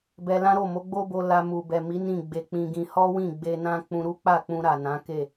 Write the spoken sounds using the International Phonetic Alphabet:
b ɛ˧ l ã˦ ɾ o˦˨ m o˨˦ ɡ͡b o˦ b o˧ l a˧ m u˨ b ɛ˨ m i˨˦ n ĩ˦˨ ɡ͡b e˧ k͡p ĩ˧ ɡ ĩ˧ h ɔ˦ w ĩ˦˨ ɡ͡b e˧ n ã˦ k͡p ũ˧ ɾ u˦ k͡p a˦˨ k͡p ũ˧ ɾ a˨ n ã˨˦ k e˦˨

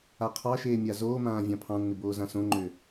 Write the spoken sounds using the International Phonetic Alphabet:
a qʰ ɑ ʃ eː mʲ a z oː m ãː vʲ ɑ̃ pʰ ɑ̃ nː ɪ b oː z ã s õ ŋ͡ǃ ø

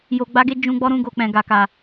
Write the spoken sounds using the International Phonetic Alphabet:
j o˨ ɡ͡b a˨˦ ɡ e˧ d͡ʒ ũ˧ ɡ͡b ɔ˦ ɾ ũ˧ ɡ o˨ k͡p ɛ̃˨ ɡ a˨ k a˨

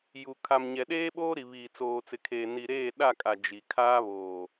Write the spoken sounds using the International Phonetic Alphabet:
j u˨ kʰ a˨ m ɲ ɛ˨ ɗ eː˦ ɓ oː˦ ɾ i˨ β iː˨ t͡s oː˨ t͡s ɪ˨ kʰ eː˨ n i˨ ɾ eː˦˨ ɗ a˦˨ kʼ a˨ d͡ʒ i˨ kʰ aː˦ β oː˨

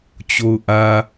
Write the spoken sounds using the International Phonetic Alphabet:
t͡ɕ o˨ ʊ̯ ʔ ä˨

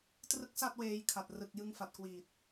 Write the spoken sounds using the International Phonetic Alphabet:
t r ɯ˦˥ k̚ s a˥˩ t̚ w eː˧ j kʰ a˨˩ t̚ r ɯ˨˩ k̚ j ɯ˧ ŋ f a˨˩ t̚ k w iː˨˩ t̚

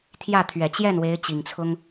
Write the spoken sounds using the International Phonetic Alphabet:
t̪ʰ j ä˥˩ t̪ʰ ɥ ɛ˨˩ t͡ɕ j ɛ˥˩ n w e˧˥ ɪ̯ t͡ɕ i˨˩ ŋ t͡sʰ ʊ˥ ŋ

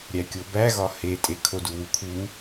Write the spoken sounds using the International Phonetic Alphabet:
ɾʲ æ kʲ o b æ ɣ ɒ h e tʼ e kʰ o d u w u kʰ u

